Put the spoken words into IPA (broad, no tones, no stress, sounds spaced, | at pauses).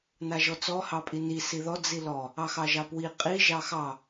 n a ʒ ɔ t͡s ɔ h ɑ pʼ i n i s i ð ɔ d͡z i l ɔ | ɑ x ɑ ʒ ɑ p w i qʼ i ʒ ɑ x ɑ